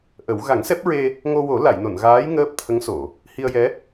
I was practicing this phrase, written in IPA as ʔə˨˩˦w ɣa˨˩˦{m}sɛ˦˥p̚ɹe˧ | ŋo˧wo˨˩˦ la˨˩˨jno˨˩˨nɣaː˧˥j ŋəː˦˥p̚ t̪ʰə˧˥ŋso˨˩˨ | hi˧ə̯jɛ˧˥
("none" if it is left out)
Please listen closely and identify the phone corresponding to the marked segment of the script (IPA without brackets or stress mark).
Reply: ŋ